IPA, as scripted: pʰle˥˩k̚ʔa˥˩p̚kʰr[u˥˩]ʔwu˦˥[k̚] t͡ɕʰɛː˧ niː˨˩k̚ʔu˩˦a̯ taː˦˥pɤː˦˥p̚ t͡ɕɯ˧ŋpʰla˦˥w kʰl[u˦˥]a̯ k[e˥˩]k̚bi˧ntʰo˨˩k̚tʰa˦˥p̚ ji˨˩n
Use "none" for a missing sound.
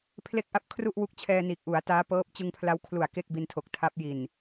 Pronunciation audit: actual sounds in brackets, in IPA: u˥˩, k̚, u˨˩, e˥˩

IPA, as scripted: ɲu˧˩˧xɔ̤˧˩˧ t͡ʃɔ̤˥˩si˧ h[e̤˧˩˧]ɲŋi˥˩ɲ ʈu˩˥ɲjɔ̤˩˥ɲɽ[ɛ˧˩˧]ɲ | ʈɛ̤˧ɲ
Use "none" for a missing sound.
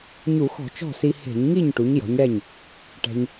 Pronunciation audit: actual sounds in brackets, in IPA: e̤˧˩˧, ɛ˥˩

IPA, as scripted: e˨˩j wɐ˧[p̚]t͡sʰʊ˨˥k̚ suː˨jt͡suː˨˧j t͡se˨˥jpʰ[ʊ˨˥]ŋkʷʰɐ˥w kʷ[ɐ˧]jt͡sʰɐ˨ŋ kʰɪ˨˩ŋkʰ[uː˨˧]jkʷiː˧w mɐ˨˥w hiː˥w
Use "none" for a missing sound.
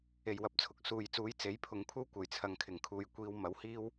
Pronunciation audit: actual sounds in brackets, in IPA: p̚, ʊ˨˧, ɐ˨˩, uː˨

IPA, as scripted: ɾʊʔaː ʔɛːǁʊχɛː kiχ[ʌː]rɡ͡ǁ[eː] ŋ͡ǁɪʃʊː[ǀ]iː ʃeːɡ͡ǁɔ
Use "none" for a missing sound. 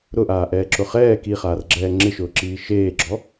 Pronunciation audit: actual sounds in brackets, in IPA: aː, ɛː, ǁ

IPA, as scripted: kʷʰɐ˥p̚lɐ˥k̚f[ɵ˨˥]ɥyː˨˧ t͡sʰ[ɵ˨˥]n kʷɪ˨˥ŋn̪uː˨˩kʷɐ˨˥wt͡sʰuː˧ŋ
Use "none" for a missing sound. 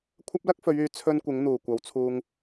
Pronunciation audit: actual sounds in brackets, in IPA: ɵ˨˧, ɵ˧

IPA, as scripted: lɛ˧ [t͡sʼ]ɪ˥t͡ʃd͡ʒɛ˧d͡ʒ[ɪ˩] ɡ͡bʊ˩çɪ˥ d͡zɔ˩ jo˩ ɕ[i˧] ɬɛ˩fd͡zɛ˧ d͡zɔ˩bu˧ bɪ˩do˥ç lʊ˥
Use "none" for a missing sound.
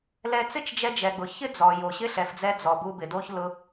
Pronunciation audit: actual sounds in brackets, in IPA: t͡s, ɛ˩, ɪ˧

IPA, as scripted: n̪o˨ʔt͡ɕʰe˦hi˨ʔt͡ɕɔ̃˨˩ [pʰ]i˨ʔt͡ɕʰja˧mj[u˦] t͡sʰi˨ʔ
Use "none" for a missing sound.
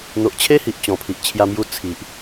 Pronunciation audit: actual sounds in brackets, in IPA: pʰ, u˧

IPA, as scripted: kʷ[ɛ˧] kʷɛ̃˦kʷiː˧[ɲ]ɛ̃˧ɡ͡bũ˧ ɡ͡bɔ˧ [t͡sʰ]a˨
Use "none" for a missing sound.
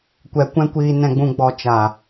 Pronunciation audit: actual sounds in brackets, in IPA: ɛ˧, n, t͡ʃ

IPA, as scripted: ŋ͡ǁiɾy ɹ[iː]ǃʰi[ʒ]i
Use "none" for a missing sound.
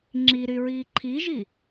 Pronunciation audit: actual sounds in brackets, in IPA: iː, ʒ

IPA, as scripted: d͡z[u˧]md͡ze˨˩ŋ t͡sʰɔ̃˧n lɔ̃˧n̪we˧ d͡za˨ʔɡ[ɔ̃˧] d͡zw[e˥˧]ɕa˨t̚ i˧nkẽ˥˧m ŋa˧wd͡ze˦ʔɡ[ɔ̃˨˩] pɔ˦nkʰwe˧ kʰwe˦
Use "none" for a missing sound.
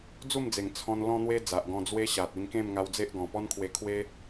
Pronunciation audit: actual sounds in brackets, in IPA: u˥˧, ɔ̃˧, e˦, ɔ̃˨˩

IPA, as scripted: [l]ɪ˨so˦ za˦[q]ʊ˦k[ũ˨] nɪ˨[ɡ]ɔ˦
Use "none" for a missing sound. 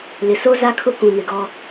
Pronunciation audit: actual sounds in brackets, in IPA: l, kʰ, ũ˨, ɡ

